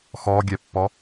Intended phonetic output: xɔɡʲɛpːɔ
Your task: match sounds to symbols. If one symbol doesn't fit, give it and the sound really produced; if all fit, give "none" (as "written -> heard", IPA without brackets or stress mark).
none